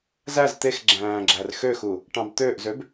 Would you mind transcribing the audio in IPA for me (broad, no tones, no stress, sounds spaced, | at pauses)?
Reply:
z æ z t̪ e x ɡ͡ǁ æ̃ː ɡ͡ǁ æ r x ø x u | ʈ ɑ̃ b t̪ øː ʔ z ø b